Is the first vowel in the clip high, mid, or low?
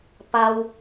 low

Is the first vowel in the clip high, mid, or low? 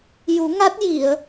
high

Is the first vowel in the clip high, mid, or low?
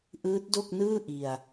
high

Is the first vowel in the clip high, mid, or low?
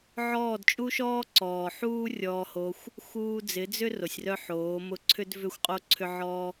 mid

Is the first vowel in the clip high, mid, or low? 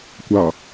low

